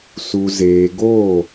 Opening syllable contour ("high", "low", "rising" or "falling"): low